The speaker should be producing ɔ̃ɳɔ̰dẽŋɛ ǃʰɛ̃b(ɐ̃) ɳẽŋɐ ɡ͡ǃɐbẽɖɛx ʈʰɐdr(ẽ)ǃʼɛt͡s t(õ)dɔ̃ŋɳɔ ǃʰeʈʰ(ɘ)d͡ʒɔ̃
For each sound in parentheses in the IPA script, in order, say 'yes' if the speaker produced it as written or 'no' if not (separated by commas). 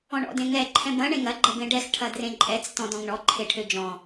yes, yes, no, no